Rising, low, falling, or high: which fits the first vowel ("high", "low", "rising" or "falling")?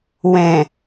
low